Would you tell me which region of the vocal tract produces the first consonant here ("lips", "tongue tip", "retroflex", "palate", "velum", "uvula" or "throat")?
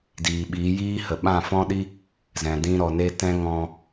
tongue tip